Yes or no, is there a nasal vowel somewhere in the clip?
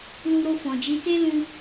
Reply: yes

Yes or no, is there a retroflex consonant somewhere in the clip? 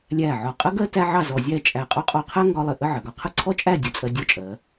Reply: no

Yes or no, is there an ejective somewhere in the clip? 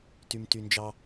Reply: no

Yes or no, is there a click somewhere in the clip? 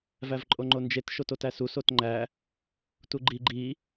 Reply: yes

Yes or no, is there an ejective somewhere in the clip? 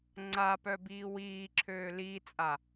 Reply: yes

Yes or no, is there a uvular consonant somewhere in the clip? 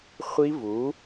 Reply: yes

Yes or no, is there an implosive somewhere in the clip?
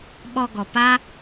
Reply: yes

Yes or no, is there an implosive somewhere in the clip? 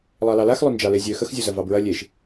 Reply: no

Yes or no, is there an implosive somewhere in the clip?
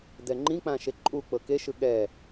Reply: yes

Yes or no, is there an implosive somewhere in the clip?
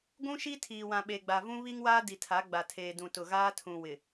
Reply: yes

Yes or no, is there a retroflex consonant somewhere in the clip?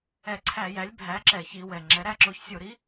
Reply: no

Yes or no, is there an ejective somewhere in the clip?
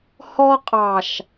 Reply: yes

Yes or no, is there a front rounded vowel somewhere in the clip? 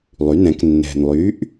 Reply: yes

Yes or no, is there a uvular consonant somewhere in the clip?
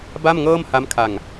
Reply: no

